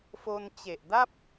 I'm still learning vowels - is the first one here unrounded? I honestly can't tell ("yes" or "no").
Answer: no